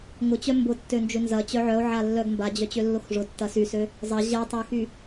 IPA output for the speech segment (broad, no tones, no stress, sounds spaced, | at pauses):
ŋ ʊ t͡ɕ œ m b ʊ tː ø n d͡ʒ ø n z ɐ t͡ɕ œ ʕ œ o̯ ʕ a lː œ ɡ m b a d͡ʑ œ t͡ɕ ø lː ʊ x ʐ ʊ tː ɐ s y s ø | zˤ ɐ ʑ ɐ tˤ ø x y